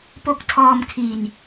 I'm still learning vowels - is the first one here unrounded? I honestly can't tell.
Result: no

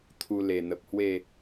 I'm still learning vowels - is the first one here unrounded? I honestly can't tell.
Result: no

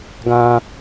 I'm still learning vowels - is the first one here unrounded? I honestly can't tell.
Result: yes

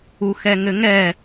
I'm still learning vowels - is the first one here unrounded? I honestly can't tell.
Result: no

